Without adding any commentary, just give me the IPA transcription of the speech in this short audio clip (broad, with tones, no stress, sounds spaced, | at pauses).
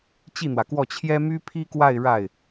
t͡ɕ i˥˩ n̪ w ä˩ k w ɔ˥˩ t͡ɕʰ j ɛ˥ m y˥ pʰ i˥ k w a˥˧ ɪ̯ ɻ a˥˩ ɪ̯